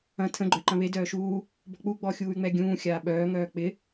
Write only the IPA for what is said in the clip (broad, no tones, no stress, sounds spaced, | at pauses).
ɐ̃ tʰ ə̃ ɡ͡ǃ œ ǃ ɐ̃ β e d œː ʃ uː | b ɔ̤ k͡p u ɡ͡b ɔ xʲ uː y̯ ŋ͡m ɛ ɡʲ ũː xʲ aː ɓ œː ŋ œː k͡p ɪ